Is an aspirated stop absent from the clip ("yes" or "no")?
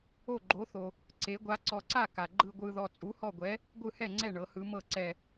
yes